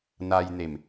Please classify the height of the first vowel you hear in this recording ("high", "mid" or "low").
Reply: low